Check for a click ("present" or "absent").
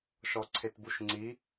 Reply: present